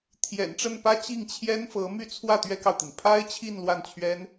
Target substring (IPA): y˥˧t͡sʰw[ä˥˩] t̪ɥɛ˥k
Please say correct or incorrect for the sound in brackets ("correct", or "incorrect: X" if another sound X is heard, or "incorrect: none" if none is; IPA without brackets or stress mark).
correct